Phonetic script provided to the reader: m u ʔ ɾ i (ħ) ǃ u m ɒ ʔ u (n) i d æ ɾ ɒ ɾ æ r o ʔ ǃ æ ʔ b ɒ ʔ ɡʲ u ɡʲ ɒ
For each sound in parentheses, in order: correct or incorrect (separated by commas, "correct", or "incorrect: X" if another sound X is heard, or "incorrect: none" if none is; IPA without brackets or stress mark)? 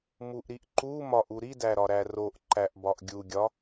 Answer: incorrect: ʔ, incorrect: ɾ